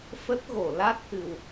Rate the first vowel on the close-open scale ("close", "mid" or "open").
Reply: mid